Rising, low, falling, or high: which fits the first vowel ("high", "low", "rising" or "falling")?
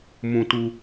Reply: high